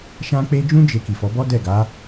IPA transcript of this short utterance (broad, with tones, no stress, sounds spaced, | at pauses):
ʃ ã˦ k͡p e˦ d͡ʒ ũ˦ d͡ʒ e˧ k i˨ f ɔ˨˦ b ɔ˦ d ɛ˦˨ ɡ a˨˦